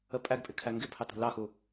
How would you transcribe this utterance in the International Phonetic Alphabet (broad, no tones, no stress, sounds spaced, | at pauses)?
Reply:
ə pʼ æ ɡ pʼ ɪ kʰ æ ŋ ɡ ɪ pʰ ɑ t ṳ l ɑ x u